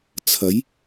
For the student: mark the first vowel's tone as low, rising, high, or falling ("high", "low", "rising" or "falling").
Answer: rising